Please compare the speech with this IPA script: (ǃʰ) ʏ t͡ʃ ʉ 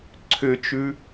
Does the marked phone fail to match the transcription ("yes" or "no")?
yes